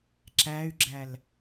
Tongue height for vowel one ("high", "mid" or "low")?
low